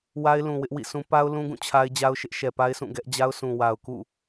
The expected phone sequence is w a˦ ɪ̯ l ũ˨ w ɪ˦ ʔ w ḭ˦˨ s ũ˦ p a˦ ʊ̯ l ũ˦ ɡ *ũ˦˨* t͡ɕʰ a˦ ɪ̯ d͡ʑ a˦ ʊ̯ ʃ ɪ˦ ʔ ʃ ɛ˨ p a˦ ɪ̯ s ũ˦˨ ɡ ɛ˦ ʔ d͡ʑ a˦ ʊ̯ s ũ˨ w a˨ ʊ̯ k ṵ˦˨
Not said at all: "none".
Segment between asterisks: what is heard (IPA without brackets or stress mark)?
ũ˦˨